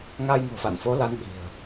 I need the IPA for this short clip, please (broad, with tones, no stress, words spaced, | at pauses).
ŋaː˧jŋo̤˨˩fa̰˧˨nfo˨˦ la˨˦nɓi̤˨˩ə̯